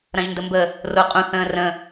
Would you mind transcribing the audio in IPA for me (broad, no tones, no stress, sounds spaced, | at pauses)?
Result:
ɾ ɐ̃ ʒ n d ə m b ə | r o qʼ ũ θ ə̃ː r ə̃